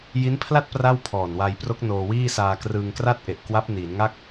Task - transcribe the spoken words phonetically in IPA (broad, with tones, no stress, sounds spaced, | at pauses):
j i˦˥ n pʰ l a˥˩ t̚ p r a˥˩ w pʰ ɔː˨˩ n w a˧ j p r o˦˥ k̚ n oː˧ w iː˥˩ s aː˧ k r ɯː˧ ŋ k r a˥˩ t̚ ʔ e˨˩ ʔ k w a˦˥ p̚ n iː˩˦ n ŋ a˥˩ k̚